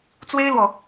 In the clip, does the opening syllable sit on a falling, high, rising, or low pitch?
high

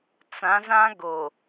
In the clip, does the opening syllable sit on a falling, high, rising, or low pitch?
rising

